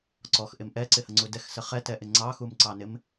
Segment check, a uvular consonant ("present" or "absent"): present